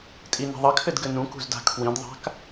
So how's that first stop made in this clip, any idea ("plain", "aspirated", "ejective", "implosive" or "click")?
ejective